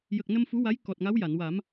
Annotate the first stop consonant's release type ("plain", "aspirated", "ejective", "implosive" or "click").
plain